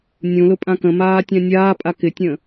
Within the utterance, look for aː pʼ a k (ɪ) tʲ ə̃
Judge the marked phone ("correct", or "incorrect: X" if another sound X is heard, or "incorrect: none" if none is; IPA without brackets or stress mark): correct